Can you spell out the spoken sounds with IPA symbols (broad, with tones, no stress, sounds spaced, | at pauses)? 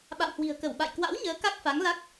ɓ a̰˧˨ w h w i̤˨˩ ə̯ k ə˧˩ w ɓ a̰˧˨ j k w a̰˧˥ w ɲ əː˨˦ k a˦˥ k̚ f a˨˦ ŋ l a˦˥ k̚